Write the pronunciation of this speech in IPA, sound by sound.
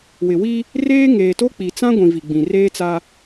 w ɪ˨ w i˦ | r eː˦ ŋ eː˨ t o˦ k͡p i˨ t͡s ã˦ ɡʷ ĩ˨ v i˨ ɡ͡b ĩ˨ r eː˦ t͡s a˦

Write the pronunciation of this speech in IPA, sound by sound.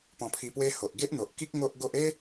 p ɔ̃˧ pʰ i˧ p w e˦ h o˨ ʔ ɡ e˦ ʔ n̪ o˨ ʔ k i˦ k̚ ŋ o˦ ʔ ɡ o˦ ʔ e˦

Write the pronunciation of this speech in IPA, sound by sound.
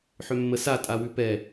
ħ ʏ mː ə s a tʼ a w ʉ p ɛ

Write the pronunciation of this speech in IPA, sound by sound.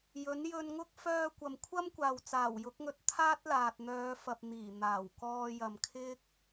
j ɵ˨˥ n j ɵ˧ n ŋ ʊ˥ k̚ f œː˧ kʷ ɐ˨ m kʷʰ ɐ˥ m kʷ aː˨ w t͡s aː˨˩ w j ʊ˨˥ k̚ ŋ ɵ˧ t̚ t̪ʰ aː˥ t̚ l aː˨ t̚ n̪ œː˨˧ f ɐ˨ p̚ n̪ iː˨˩ n̪ aː˨˩ w k ɔː˧ j ɐ˨ m kʰ ɪ˥ k̚

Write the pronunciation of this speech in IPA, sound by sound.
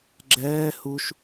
ɡ͡ǁ ɛː h u ʃ

